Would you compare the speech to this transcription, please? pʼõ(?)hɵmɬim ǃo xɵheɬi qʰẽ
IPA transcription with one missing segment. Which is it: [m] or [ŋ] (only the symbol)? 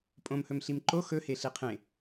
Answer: m